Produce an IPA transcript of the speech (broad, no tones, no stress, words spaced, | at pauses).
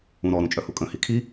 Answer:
ũɾɔ ɾũt͡ʃʼœhukʼə̃ hikʰi